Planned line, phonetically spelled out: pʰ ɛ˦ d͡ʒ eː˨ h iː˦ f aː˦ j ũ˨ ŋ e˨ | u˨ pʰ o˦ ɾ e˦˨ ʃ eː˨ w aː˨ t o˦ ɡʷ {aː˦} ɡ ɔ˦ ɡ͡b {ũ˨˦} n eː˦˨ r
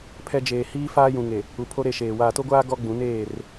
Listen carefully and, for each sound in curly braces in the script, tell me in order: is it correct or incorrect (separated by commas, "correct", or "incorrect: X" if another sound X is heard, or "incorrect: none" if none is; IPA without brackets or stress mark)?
correct, correct